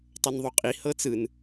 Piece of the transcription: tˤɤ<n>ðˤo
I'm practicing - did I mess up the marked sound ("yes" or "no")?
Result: no